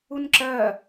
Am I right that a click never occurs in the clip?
no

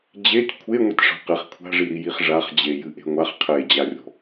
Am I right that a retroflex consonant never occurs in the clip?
no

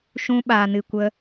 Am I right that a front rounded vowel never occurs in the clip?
yes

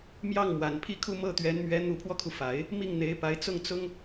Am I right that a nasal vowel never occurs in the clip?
yes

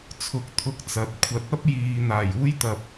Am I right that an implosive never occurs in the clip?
yes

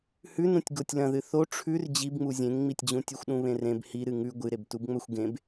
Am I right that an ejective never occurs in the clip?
yes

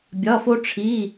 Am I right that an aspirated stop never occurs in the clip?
no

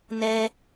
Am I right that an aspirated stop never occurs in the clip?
yes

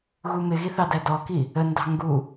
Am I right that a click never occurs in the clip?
yes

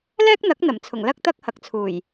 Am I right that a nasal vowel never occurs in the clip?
yes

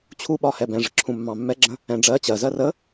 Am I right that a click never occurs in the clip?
no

